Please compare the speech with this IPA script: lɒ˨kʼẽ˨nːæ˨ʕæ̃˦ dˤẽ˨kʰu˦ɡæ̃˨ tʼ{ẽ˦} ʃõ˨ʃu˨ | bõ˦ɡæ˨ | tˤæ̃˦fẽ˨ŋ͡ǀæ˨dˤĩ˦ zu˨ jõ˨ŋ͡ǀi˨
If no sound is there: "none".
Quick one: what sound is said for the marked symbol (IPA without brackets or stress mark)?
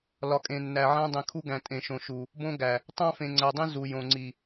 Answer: ẽ˨